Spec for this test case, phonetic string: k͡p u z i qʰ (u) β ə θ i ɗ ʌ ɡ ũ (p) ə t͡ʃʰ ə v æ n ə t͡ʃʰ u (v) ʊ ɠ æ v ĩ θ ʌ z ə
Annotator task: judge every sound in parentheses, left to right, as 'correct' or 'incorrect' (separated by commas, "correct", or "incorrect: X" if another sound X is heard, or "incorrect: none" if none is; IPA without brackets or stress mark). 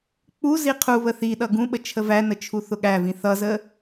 correct, incorrect: ɓ, incorrect: θ